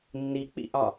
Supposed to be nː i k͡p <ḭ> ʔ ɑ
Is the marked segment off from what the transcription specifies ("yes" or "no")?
no